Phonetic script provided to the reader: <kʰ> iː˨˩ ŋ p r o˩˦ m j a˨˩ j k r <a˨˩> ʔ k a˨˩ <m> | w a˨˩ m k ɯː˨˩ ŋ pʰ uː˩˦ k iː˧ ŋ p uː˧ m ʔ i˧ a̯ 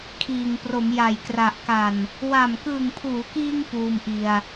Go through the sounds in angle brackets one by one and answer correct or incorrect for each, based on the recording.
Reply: correct, correct, incorrect

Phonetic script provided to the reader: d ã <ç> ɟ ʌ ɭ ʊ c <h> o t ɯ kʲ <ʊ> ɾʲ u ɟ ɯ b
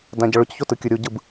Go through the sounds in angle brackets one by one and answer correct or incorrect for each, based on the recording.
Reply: incorrect, incorrect, incorrect

